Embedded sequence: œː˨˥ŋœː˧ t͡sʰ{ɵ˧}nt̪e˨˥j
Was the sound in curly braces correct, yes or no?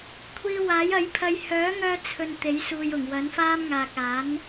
yes